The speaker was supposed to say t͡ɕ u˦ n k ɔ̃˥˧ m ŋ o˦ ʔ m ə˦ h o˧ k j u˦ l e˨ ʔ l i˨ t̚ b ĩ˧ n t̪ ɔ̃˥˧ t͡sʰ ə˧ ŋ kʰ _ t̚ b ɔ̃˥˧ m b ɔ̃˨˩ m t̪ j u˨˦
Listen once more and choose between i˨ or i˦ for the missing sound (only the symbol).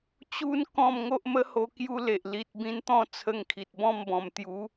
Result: i˨